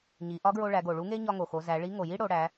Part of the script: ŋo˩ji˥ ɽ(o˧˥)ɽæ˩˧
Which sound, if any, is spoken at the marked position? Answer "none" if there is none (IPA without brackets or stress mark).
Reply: o˩˧